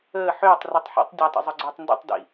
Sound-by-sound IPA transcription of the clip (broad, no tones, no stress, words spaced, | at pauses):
əː ħʏːtˤ ritˤħḭtˤ dʲatˤə̰zˤʏɡ͡ǀʏːtˤ ndə̰tˤdḭ